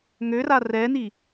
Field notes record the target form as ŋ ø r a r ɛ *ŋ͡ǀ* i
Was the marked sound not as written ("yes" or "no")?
yes